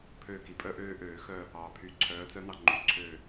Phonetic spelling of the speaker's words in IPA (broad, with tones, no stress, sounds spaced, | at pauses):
pʰ øː˦˨ k i˨˩ pʼ œ˦ ʔ øː˦ ʔ øː˧˩˧ x œ˦˨ | ɑː˨˩ pʰ yː˨˦ ǀʰ œː˨˦ t͡s œ˦ n ɑ˦˨ ŋ͡ǃ y˨˦ ǀʰ øː˦˨